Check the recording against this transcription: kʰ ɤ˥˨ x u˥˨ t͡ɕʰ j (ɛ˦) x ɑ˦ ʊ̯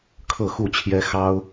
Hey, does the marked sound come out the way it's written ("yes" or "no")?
yes